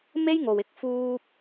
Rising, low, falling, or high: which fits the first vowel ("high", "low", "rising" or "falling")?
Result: high